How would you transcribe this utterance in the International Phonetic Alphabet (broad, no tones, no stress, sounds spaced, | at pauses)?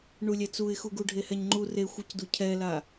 ɳ u lʲ ɛ t͡s u ɪ̯ x u ɡ u ɖʱ e h ɛ ɲ ŋ͡ǃ u r e xʷ ɤ c d u cʰ ɛ l a